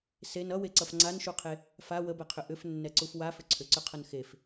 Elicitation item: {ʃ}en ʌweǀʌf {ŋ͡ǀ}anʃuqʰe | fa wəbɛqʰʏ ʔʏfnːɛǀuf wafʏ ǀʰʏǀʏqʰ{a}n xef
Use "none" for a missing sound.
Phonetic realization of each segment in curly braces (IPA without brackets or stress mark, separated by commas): s, ŋ͡ǀ, ʌ